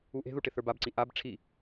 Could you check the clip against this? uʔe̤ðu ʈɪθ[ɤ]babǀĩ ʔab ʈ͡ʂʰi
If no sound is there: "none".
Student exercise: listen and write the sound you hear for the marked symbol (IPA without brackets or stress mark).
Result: ə˞